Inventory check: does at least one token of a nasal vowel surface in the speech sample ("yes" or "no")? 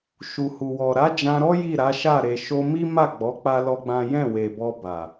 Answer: yes